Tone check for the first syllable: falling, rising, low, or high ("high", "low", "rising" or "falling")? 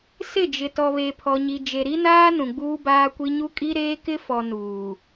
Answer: falling